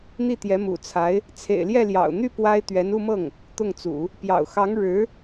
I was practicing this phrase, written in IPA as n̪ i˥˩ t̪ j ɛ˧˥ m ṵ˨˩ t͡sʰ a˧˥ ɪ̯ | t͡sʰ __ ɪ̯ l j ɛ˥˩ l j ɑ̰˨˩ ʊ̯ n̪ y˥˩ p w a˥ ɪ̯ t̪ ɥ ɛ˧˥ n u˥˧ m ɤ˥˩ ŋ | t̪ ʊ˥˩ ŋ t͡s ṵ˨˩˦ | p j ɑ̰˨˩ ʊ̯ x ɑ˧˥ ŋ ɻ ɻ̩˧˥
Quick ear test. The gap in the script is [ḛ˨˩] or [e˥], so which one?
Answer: ḛ˨˩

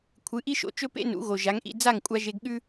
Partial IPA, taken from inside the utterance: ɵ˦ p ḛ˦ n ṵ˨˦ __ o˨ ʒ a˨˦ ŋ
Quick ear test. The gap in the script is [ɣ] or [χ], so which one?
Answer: ɣ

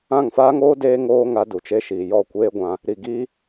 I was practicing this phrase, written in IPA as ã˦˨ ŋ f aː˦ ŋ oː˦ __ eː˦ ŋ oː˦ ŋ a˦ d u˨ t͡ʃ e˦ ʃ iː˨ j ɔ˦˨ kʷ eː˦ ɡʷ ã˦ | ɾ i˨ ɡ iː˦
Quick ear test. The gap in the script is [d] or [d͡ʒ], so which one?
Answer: d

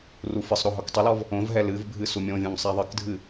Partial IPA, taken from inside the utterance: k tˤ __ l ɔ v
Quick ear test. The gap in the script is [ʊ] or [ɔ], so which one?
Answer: ʊ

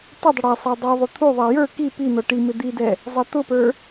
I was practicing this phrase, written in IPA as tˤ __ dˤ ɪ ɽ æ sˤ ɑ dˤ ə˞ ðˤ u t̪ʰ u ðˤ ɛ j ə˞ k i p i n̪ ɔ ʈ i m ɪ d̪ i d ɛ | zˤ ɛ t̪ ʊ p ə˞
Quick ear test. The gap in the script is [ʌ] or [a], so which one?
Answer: ʌ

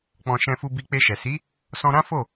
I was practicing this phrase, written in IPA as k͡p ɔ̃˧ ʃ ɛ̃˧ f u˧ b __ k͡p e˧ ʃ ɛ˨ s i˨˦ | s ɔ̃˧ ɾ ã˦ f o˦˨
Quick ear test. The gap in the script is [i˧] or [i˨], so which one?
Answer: i˧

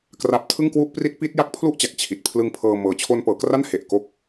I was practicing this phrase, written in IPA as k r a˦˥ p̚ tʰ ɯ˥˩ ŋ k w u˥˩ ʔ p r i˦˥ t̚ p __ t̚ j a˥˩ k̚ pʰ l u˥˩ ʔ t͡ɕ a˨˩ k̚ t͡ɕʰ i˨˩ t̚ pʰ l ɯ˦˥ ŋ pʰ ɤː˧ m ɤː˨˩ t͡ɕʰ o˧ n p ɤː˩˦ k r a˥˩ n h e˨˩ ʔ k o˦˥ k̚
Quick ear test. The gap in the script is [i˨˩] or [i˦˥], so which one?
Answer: i˦˥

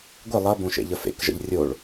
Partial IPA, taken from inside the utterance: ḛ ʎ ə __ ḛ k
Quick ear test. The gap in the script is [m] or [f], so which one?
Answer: f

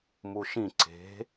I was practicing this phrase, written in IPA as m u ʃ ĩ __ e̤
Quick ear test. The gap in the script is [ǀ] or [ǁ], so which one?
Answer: ǀ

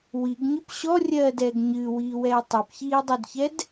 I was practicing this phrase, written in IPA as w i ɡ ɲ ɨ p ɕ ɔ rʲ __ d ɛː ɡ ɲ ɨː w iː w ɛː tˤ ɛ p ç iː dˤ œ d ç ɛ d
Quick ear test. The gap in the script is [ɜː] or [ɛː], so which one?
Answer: ɜː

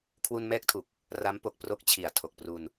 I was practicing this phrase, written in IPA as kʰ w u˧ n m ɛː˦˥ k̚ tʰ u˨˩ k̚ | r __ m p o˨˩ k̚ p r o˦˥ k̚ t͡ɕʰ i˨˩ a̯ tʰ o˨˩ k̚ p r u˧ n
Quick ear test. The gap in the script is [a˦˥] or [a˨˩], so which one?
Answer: a˦˥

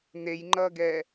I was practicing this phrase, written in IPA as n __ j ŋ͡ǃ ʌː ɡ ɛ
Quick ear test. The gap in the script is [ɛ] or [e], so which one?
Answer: e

